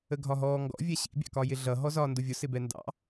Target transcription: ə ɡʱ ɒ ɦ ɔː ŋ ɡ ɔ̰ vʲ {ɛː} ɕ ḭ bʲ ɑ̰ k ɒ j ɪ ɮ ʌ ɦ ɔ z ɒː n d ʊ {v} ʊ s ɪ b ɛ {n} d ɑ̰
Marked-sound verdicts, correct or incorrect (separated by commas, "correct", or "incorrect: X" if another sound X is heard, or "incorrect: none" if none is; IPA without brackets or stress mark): incorrect: ɛ, incorrect: vʲ, correct